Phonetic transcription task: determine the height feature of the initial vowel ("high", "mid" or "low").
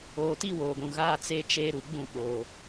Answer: mid